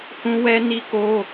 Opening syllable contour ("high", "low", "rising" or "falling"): high